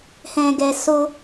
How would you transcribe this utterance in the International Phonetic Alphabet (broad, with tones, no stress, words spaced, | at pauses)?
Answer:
hɛ̃˨ɡɛ˨so˧